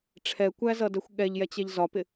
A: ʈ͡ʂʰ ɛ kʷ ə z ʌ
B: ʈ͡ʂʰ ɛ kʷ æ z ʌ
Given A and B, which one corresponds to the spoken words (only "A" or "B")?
B